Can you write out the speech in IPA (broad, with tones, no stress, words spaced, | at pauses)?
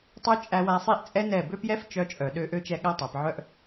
tˤø˦ t͡ʃʼæ˧wæ˧sˤi˦˨ʔt͡sʼɛ˦ nɛ˦˨ bø˦pjɛ˦ft͡ʃœ˧ t͡ʃʼœ˨ ɗø˧ʔø˦t͡ʃɛ˧ ɠæ˦tˤæ˨pʕœ˦ʔ